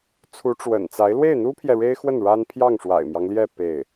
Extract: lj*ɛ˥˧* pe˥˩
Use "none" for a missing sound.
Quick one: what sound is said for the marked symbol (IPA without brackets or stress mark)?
ɛ˥˧